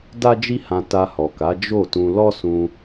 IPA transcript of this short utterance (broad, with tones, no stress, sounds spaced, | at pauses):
d a˦ d͡ʒ i˦ h ã˧ t a˧ h ɔ˨ k a˨˦ d͡ʒ o˦˨ t ũ˧ l ɔ˦ s ũ˧